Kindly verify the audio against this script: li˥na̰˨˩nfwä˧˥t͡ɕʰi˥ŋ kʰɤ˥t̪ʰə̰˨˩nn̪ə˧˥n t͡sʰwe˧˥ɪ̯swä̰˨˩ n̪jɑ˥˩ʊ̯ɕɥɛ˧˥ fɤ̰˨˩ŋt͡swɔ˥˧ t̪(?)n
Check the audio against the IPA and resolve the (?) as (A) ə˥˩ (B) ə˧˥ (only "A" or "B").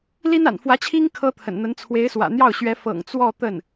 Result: A